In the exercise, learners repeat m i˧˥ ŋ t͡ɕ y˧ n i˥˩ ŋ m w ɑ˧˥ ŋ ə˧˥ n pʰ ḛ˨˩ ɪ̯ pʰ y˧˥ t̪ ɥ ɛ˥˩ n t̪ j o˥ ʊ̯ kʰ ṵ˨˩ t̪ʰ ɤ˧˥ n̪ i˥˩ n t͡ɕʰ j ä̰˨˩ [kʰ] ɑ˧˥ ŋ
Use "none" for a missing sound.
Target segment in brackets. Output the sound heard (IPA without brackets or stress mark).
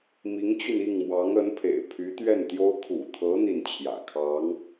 kʰ